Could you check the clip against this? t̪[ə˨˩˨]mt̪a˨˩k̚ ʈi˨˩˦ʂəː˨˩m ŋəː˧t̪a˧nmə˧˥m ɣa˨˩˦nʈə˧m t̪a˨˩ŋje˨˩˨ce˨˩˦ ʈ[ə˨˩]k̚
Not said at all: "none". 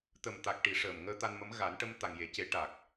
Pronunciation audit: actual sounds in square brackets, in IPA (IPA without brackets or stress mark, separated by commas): ə˨˩, a˨˩